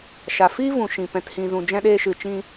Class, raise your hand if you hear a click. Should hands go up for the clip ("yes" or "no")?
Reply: no